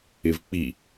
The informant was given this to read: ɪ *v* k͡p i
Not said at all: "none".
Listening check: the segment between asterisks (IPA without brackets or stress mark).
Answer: v